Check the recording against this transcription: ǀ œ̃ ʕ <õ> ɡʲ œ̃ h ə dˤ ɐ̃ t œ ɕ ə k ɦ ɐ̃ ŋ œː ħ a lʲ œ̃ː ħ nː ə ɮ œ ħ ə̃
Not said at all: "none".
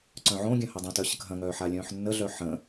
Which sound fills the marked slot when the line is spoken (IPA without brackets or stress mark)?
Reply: õ